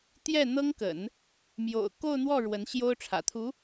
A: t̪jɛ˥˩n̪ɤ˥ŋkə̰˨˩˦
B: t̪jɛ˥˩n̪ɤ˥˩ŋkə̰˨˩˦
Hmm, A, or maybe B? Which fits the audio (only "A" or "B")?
A